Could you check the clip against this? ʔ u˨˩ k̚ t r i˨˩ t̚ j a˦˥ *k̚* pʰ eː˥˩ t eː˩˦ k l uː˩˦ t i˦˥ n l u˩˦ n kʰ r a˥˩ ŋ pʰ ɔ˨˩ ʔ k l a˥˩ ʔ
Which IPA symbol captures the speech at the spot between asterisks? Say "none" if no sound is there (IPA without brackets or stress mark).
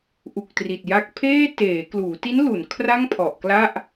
k̚